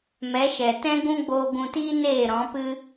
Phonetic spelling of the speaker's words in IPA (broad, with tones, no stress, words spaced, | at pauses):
mɛ˨˦ʃɛ˨ tɛ̃˦ɡũ˦ ɡ͡boː˧ɡũ˧tiː˦ neː˦˨ɾɔ̃˨˦pɨ˦